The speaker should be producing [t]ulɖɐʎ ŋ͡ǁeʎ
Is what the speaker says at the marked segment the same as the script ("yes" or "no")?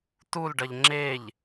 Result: yes